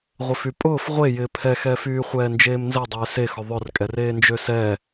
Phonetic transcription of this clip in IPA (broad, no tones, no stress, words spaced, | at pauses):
ʁʷɪfypʼʊːf ʁʷe jɪːpʰɛxɛːfyː χʷɛːnd͡ʒeːmnzɛ dˤeːsexʊ ðˤʊrkʼɛreː nd͡ʒøsɛ